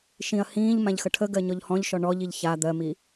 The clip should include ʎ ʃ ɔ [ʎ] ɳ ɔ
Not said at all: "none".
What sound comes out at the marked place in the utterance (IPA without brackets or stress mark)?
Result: none